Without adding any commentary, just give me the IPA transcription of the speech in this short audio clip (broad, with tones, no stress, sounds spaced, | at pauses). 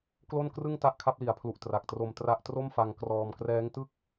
k l o˥˩ n k r ɯ˥˩ ŋ t a˥˩ ʔ kʰ a˦˥ p̚ l i˩˦ a̯ pʰ l u˨˩ ʔ t r a˨˩ k̚ t r o˧ m t r a˦˥ ʔ t r o˥˩ m f a˧ ŋ k r ɔː˧ m k r ɛː˦˥ ŋ t ɯ˥˩ k̚